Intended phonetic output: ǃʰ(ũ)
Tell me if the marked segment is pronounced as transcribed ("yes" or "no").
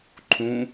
yes